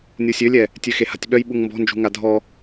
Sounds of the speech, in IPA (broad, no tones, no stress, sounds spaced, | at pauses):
nʲ u sʲ ø lʲ ɛ | tʲ ø x e h a̤ tʲ ɓ œ j ɓ u ŋ m b ɔ̤ n d͡ʒ ṳ ŋ a dʱ ɔ